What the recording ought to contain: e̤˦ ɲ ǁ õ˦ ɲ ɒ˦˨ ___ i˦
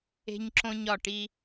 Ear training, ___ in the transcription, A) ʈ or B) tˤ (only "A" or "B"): A